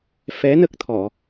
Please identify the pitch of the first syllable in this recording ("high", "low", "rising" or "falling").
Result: rising